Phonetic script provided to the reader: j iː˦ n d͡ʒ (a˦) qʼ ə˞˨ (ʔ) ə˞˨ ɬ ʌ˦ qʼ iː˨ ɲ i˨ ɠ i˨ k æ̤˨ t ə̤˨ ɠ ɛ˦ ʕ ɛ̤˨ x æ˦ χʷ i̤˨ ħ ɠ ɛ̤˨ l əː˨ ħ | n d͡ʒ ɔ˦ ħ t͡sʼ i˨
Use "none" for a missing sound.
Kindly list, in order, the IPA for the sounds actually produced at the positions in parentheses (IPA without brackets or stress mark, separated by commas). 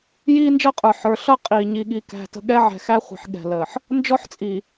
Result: ʌ˦, ħ